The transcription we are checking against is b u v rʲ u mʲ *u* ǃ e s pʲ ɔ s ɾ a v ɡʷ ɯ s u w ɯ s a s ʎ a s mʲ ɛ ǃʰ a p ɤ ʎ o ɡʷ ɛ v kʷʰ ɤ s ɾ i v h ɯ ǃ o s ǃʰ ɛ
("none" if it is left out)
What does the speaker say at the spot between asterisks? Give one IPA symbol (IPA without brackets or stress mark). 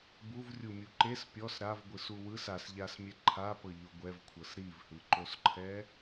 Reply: u